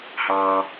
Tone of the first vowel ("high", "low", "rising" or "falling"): low